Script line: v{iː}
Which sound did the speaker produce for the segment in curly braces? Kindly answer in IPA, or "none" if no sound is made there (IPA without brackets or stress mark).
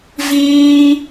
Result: iː